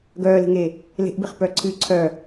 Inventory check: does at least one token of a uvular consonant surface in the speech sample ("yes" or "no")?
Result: yes